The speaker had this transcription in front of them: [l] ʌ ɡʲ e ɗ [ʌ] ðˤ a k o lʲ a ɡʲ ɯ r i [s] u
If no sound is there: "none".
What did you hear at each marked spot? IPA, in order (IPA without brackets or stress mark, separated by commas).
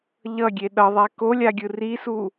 ʎ, ʌ, s